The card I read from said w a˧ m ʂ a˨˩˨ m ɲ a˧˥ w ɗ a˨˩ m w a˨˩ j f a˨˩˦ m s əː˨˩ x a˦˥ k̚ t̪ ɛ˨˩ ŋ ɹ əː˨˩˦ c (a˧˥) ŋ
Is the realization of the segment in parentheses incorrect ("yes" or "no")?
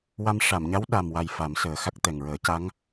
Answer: no